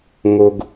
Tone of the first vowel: low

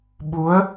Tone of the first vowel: rising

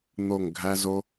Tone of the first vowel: falling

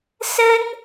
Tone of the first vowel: high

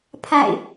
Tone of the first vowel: falling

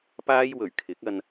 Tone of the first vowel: high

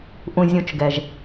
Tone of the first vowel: low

